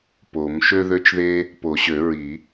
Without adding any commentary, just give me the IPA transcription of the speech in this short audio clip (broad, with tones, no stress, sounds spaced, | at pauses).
p o˨˩˦ m ʃ ø˥ ð ø˥ t͡ʃ ð e˥ | p o˨˩˦ ɕ ø˨˩˦ ɹ i˨˩˦